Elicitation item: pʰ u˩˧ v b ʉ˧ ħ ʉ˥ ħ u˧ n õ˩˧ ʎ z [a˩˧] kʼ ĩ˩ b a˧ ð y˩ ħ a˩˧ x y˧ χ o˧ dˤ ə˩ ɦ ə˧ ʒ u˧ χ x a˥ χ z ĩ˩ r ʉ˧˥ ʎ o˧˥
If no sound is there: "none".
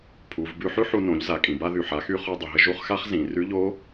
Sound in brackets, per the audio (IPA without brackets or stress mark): a˩˧